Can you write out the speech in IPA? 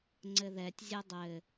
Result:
ŋ͡ǀ ɘ ð ɛ tʲ zʲ ɘ dˤ ɘ

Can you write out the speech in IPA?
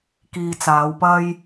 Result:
k iː˨ t͡s aː˨˧ w p ɐ˥ j

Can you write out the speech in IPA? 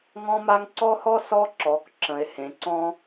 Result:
ŋ ɔ̃˥ m a˥ ŋ ǀ ɔ˥ h ɔ˥ s ɔ˥ ǁ ɔ˩˧ k ǁ ə̃˩˧ e̯ h ẽ˩˧ ǀ ɔ̃˥

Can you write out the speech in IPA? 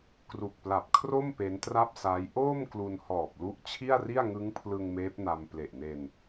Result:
k r u˨˩ k̚ p l a˨˩ p̚ kʰ r o˥˩ m p e˦˥ n t r a˥˩ p̚ s aː˦˥ j ʔ oː˥˩ m k l u˧ n h ɔː˨˩ p̚ l u˦˥ ʔ t͡ɕʰ i˥˩ a̯ r i˥˩ a̯ ŋ ɯ˦˥ ŋ pʰ l ɯ˧ ŋ m eː˦˥ p̚ n a˧ m p l e˨˩ ʔ n e˧ n

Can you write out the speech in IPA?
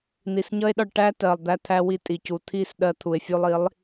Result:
n̪ i˨ s ɲ ʌ˦ e̯ ɗ ɒ˧ ɭ ʈ æ˦ t ɜ˨ lˠ d̪ æ˧ t̪ʰ æ˧ w i˧ tʼ i˨ c u˨ t̪ʰ i˦˨ s ɗ ɜ˧ t̪ʰ u˨ e̯ fʲ u˧ lˠ i˨˦ lˠ

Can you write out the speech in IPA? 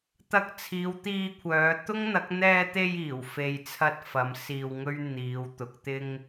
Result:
t̪ ɐ˧ k̚ t͡sʰ iː˨˧ w t̪ iː˧ kʷʰ œː˨˧ t̪ ʊ˥ ŋ n̪ ɐ˨˥ k̚ n̪ ɛː˧ t̪ e˧ j iː˨˩ w f e˧ j t͡sʰ ɐ˥ t̚ f ɐ˨˥ m s iː˧ w ŋ ɵ˥ ɥ n̪ iː˨˧ w t̪ ʊ˨˥ k̚ t̪ ɪ˥ ŋ

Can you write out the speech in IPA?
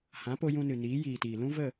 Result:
h ã˨˦ p o˧ j ũ˧ n ɨ˨ n iː˨˦ j iː˨ t iː˨ l ũ˦ v ə˦˨

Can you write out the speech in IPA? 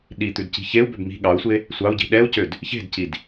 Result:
ɗ i t̪ ʉ d c i̤ ç e u̯ b ø b m i̤ ɠ ɑ u̯ sʷ e | sʷ ɑ u̯ ɟ i̤ ɗ ɛ u̯ c ø d | ç e̤ d c i d

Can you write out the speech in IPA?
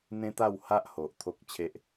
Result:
n̪ ẽ˦ t̪ a˥˧ w h a˦ ʔ h o˨ ʔ t̪ʰ o˦ k̚ t͡ɕʰ e˦ ʔ

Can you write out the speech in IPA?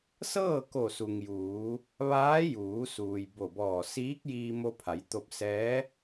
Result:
s ɤː˥˨ k o˧˩ s u˩ ŋ j uː˩˧ | ʋ aː˧˥ j uː˩˧ s uː˩ j b o˧˩ b ɔː˧˩ s iː˧˥ k̚ j iː˧ m o˧ pʰ a˩˧ j t̪ o˧ p̚ s ɛː˧˥

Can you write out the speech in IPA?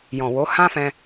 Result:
j ɔ̃˨ w o˨˦ h ã˦ f ɛ̃˧

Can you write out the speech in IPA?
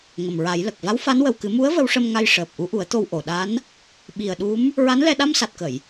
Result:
ŋ ə˨˩ m ɹ a˨˩˦ j l ə˨˩ k̚ v a˧˥ w f a˧˥ n w ə˨˩ w k ɨ˨˩˦ m u˧˥ ə̯ v ə˧˥ w ʂ ə˧ m ŋ a˧ j ʂ əː˨˩ p̚ ʔ u˧˥ ʔ u˨˩˦ ə̯ t̪ o˧ w ʔ o˨˩˨ ɗ a˧˥ n | ɓ i˨˩ ə̯ ɗ u˧˥ m | ɹ a˧˥ n l ɛ˧ ɗ a˧ m s a˨˩ t̚ k ə˨˩˨ j

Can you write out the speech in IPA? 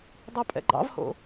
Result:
dˤ ɑ pʼ ɛ̰ ɡ͡ǃ ɑ̰ v h o̰

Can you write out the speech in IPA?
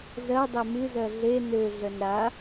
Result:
z ɜ dˤ e m ɨ z ɜ ɮ e n ø ɮ ə n ɾ a

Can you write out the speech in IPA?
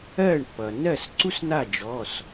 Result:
ɜː˥˩ ɳ pː ʌː˩ nː ɜ˥˩ s ǀ u˥ s n̪ a˥˩ d͡ʒ ɔ˩˧˩ s

